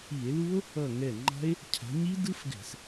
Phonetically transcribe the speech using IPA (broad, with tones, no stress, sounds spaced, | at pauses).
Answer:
i˧˩˧ e̯ l u˦˥ o̯ | ʌ˧˩ ŋ ɛ˧˩ ŋ͡ǃ a̤˦˥ e̯ | cʰ a̤˨˦ ɲ i˦˥ d ɯ˦˥ f ɡ ɛ̤˧˩˧ s